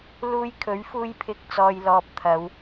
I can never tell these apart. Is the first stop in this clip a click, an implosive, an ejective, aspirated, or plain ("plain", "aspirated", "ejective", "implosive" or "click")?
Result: aspirated